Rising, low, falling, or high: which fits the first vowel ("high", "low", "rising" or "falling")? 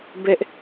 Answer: high